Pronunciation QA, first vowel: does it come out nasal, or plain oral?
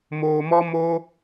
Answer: oral